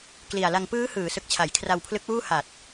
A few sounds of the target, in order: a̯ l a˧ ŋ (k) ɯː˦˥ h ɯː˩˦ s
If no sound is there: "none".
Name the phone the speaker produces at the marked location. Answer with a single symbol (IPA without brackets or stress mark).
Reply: p